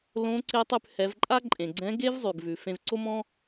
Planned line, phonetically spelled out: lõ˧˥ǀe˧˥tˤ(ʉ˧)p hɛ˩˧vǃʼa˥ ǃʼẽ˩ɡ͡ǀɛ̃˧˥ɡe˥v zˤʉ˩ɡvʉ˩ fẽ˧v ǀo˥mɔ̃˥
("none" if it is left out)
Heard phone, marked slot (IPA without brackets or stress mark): ʉ˧